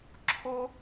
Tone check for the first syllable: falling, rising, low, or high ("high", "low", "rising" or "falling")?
high